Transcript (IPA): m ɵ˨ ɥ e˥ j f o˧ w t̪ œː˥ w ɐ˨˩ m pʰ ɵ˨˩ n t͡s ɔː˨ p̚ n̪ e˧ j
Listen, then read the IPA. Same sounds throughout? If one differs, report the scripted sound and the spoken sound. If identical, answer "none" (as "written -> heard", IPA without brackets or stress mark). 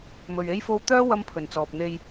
ɐ˨˩ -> ɐ˥